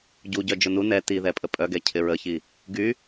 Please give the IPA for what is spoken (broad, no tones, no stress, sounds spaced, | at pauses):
ɟ u ɟ œ d͡ʒ ʊ n u n ɛ t i ð ɛ pʼ ə pʼ œ ɡ ɛ cʰ ɪ ɹ ə ç i | ɡ y